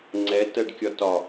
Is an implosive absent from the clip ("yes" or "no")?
yes